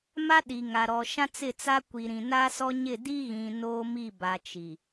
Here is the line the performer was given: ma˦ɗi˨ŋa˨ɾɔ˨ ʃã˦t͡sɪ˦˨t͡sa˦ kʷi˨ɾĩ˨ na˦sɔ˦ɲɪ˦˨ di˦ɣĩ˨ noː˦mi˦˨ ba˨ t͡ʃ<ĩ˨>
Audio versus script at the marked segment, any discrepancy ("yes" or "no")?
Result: yes